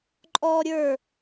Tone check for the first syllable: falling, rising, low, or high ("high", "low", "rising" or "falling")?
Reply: high